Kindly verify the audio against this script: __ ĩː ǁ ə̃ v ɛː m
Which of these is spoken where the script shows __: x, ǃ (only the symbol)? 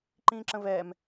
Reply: ǃ